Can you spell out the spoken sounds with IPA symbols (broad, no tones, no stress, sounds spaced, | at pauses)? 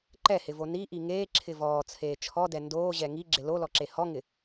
ǃ ɛ h ɪ v o n i ʔ i ŋ eː ǁʰ ɪ v ɔː t͡sʰ eː t͡ʃʰ ɔ d ɛ n d oː ʑ ɛ ŋ i ɡ͡ǁ ɪ l o l ɔ ǁ e h ɔ ŋ ɪ